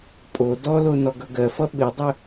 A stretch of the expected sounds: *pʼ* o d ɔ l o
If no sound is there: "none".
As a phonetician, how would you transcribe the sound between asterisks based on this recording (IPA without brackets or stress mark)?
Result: pʼ